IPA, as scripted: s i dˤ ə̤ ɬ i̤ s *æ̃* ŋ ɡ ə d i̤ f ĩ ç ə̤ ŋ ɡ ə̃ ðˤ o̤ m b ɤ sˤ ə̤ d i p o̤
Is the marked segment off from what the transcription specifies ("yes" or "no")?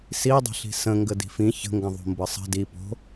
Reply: yes